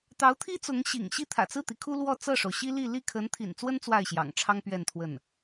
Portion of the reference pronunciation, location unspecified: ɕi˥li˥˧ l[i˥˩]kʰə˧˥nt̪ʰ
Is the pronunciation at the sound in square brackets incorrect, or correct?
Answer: correct